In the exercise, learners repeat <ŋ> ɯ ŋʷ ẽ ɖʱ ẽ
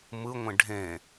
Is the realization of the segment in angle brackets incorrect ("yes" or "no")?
yes